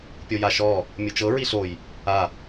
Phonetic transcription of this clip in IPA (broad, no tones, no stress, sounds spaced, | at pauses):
pʲ o j a ʃ ɔ | mʲ ɯ t͡ʃ ɤ ɹ i ɬ o j | a